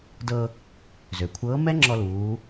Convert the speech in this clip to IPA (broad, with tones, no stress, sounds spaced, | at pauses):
d ɤ˧ | z ø˩ kʷʰ ɤː˧˥ m ɛ˥ ŋ͡ǁ ɔ˧ l uː˩˧